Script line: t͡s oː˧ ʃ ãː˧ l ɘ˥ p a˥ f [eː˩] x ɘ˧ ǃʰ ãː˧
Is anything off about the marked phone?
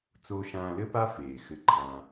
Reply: no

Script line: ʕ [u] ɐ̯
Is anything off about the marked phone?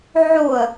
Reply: yes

